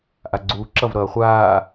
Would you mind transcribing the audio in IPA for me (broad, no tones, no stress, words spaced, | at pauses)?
ʔaɡ͡ǀuːǁʌv ɾʌːχʷaː